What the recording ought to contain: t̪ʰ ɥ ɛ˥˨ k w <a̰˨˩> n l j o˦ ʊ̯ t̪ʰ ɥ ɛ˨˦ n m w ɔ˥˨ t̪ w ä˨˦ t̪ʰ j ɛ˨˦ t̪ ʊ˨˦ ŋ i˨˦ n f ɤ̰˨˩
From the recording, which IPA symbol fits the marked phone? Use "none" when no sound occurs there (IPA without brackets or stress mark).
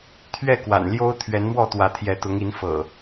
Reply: a̰˨˩